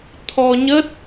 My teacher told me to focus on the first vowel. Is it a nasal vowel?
no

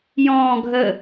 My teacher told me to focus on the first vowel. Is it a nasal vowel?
yes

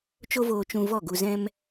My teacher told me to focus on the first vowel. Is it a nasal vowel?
no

